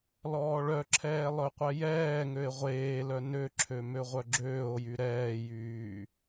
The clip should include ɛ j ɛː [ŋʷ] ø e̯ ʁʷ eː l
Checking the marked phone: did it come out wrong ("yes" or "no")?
yes